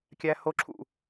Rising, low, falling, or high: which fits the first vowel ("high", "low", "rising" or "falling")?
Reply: high